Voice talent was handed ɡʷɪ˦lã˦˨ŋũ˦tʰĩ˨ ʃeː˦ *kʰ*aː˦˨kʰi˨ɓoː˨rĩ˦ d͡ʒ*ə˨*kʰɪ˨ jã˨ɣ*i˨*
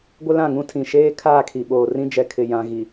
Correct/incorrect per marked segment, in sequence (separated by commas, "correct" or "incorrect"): correct, incorrect, correct